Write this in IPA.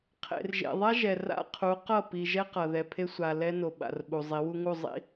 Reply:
qʰḛ˨rʒḛ˨ðˤa˦ʒɛ˨ ra̰˦ qʰu˨˦qʌ˦˨ pi˨ʒɛ˦q ʌ˨ ðɛ˨pʰe˦sʷa˨ lɛ˦no˨ɓa̰˨r ɓu˨zˤi˨˦wu˦ŋu˦˨ zˤḭ˨

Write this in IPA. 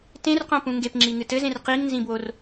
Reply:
tẽrqõpũ ŋɡepŋ͡ǁiŋɨ tɘzẽr qiŋnzĩbwor

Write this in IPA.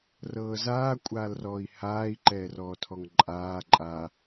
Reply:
rɤːzaː kʷʼaːlrɔːi̯haːi̯ ǃɛːrɔːtʰɔŋǃʼaː ǃʼa

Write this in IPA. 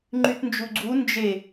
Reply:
ŋ͡ǃytnd͡ʒuɡ͡ǀu nd͡ʒe

